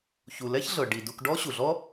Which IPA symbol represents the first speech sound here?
ç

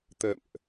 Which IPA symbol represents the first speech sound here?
t̪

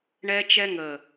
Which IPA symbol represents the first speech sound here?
ɳ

